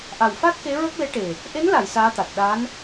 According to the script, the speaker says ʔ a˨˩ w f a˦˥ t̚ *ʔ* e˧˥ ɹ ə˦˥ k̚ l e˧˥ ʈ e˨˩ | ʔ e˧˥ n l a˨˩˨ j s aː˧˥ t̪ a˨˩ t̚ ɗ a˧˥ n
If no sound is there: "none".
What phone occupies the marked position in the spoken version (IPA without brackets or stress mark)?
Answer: k